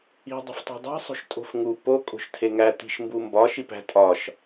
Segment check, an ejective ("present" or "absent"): present